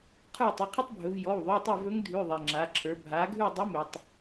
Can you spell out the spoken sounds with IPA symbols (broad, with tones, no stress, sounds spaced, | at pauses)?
qʰ ə˞˦˨ tˤ ɪ˩˧˩ qʰ ɪ˥ tˤ bʱ ɵ˩˧ v j ɔ˩˧˩ w ðˤ ʉ˩˧˩ tˤ ɪ˦˨ v ɵ˧˥ ŋ dʱ ʉ˩˧˩ ðˤ e˩ ŋ͡ǁ a˩˧ ǁʰ ə˞˩˧ bʱ a˩˧ ɡʱ ʉ˦˨ dˤ ə˧˥ m ɵ˩ tˤ